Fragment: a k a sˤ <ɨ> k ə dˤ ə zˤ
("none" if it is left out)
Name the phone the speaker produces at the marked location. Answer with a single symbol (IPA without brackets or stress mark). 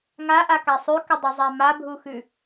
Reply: ʉ